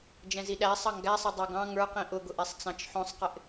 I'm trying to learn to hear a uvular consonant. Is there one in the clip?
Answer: yes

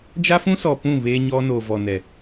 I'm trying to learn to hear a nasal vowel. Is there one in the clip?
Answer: yes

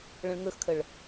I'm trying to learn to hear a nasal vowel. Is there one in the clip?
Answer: yes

